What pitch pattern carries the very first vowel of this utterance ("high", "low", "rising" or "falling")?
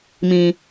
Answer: low